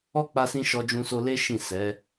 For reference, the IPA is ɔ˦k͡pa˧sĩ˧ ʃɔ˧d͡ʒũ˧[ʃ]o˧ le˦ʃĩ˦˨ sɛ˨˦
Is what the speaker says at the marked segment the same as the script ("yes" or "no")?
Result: no